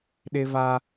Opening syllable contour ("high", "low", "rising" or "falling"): high